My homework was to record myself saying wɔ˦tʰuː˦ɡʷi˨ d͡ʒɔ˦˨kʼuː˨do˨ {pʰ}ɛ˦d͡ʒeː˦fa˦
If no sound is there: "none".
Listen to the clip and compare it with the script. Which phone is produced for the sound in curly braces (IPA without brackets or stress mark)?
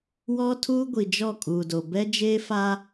b